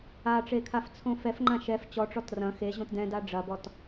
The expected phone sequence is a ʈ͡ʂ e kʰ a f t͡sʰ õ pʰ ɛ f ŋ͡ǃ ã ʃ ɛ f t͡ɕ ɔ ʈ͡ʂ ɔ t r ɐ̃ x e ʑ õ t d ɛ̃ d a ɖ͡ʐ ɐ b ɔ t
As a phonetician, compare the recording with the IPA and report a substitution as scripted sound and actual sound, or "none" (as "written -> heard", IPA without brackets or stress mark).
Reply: pʰ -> f